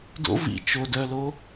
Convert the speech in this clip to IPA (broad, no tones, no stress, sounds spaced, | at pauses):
d o̰ v ḭ t͡ʃ o d œ l o